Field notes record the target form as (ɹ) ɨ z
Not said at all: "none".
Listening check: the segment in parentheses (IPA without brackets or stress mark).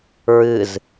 ɹ